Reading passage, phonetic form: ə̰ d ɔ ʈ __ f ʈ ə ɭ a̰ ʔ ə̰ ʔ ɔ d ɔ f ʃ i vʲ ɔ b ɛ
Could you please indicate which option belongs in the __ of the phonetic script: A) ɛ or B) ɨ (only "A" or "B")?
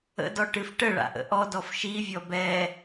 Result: B